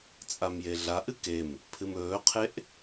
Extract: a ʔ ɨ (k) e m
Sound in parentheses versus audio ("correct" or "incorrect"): correct